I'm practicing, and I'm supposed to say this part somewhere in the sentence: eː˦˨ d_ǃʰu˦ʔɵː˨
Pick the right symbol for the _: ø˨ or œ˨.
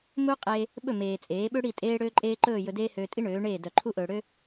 œ˨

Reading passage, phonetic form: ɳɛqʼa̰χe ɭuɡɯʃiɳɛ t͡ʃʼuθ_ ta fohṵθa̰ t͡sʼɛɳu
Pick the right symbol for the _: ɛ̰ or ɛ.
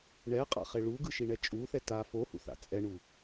ɛ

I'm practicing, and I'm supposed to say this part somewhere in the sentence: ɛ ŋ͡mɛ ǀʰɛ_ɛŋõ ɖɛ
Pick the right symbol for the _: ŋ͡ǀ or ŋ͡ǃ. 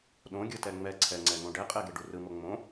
ŋ͡ǀ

